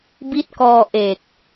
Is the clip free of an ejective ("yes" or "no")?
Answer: yes